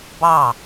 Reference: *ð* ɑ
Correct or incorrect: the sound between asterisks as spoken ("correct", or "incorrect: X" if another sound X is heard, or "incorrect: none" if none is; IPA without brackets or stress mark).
incorrect: b